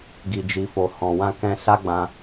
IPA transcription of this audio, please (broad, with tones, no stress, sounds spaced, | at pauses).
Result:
ɡ i˨ d͡ʒ i˨ f o˨ h ɔ̃˨ w ã˧ k ɛ̃˧ s a˦ ɡ͡b ã˧